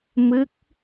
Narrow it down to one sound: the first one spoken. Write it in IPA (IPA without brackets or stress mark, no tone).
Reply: m